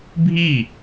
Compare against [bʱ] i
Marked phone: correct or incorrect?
correct